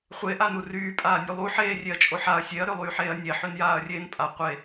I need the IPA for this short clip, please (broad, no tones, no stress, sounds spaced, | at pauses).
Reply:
χʷ e ʔ a n u r yː pʼ aː nʲ u lˠ u ħ eː rʲ e ɐ̯ t͡ʃʼ o ħ a ɐ̯ sʲ e ɐ̯ ɾ ø lˠ yː ħ eː ɐ̯ nʲ e ħ ø n j aː ɐ̯ rʲ eː n pʼ a qʷ e